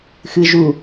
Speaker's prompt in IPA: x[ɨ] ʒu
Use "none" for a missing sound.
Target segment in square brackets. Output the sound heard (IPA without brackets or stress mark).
ɨ